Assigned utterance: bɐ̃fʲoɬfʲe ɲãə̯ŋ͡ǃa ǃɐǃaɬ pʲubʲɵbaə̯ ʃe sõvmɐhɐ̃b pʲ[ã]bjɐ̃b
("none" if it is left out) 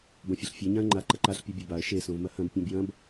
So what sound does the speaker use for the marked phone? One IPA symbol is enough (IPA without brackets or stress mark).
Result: ã